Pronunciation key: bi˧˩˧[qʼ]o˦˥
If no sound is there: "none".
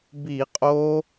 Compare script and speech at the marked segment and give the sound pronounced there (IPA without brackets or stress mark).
qʼ